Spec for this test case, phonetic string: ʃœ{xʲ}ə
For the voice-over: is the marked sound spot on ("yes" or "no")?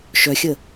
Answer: yes